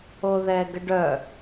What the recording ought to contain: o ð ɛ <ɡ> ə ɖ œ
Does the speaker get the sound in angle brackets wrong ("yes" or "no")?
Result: no